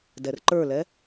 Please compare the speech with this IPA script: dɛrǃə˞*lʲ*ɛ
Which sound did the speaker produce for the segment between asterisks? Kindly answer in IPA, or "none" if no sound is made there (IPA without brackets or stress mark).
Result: l